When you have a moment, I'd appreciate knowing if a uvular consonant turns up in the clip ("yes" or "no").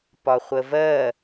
yes